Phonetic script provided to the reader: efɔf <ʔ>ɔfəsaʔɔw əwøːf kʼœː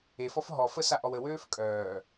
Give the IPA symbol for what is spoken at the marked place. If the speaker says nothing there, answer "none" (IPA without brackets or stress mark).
ɦ